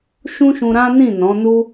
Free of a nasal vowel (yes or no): no